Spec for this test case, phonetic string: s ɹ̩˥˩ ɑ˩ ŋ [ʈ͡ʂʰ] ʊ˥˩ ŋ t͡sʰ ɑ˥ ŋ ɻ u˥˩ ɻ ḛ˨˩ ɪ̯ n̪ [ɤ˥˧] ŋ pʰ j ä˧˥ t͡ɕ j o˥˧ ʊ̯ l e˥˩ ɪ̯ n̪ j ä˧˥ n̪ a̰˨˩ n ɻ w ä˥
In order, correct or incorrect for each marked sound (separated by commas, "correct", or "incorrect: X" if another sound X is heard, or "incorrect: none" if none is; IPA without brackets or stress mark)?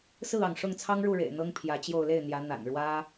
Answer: incorrect: ʂ, incorrect: ɤ˥